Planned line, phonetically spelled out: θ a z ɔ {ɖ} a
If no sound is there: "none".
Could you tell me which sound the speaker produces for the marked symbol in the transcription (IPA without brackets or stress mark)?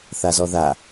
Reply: ð